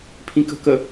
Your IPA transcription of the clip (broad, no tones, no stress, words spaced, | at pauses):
pʰĩkə̤kə